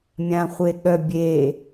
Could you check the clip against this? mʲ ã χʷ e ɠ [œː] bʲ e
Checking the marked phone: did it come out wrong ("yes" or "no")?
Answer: yes